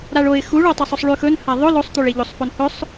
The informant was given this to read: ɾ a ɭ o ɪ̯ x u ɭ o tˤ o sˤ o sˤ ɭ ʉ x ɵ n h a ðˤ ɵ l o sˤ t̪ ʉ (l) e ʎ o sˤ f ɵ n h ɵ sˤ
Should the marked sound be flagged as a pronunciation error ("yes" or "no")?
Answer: yes